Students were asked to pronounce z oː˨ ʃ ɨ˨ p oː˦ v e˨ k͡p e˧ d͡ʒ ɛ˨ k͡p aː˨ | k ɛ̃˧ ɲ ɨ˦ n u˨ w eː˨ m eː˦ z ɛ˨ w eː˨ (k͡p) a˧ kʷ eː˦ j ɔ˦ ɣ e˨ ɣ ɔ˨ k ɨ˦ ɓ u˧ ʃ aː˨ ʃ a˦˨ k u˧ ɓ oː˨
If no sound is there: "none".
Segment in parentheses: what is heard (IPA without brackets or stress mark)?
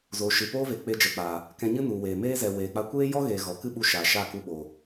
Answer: k͡p